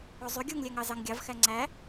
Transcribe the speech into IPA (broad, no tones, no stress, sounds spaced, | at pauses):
o zˤ y ɡʲ u ŋ lʲ æ ŋ ɑ z ɑ ŋ ɡʲ ɑ v x æ ŋ͡ǀ æ